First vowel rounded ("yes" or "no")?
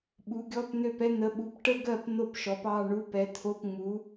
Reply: yes